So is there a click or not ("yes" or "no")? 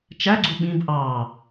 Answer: yes